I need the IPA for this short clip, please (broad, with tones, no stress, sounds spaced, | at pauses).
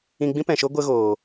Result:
ĩ˧ ɡ͡b ĩ˦ p ɛ̃˨ ʃ o˦ ɡʷ ə˦ ɣ oː˨